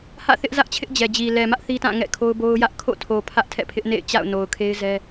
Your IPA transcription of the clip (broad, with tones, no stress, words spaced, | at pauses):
hä̰˦˨θɪ˦ʔzä˦ʔt͡ɕʰɪ˦ʔ d͡ʑɛ˨d͡ʑi˨ lɛ˨mä˦ʔ θi˦tã˦˨ ŋɛ̰˦˨kʰo˦ʊ̯bo˦ʊ̯ jä˦ʔ kʰo̰˦˨tʰo˨ pʰä˦ʔtʰɛ̰˦˨pʰɪ˦ʔnḛ˦˨ɪ̯ t͡ɕa̰˦˨ʊ̯ no˨ʊ̯kʰe˦ɪ̯zɛ˦